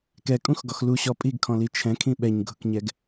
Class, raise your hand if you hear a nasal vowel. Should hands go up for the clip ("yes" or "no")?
yes